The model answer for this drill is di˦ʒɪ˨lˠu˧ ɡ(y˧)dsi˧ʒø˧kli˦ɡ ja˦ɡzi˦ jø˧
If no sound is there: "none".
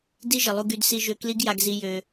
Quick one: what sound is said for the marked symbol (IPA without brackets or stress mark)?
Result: y˧